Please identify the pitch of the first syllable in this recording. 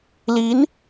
rising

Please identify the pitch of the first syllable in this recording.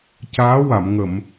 rising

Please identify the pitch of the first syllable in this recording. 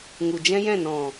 low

